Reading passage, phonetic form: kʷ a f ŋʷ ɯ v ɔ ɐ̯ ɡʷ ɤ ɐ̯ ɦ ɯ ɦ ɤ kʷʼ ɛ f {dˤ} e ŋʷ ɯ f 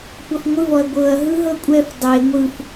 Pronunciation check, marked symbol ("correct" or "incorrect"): correct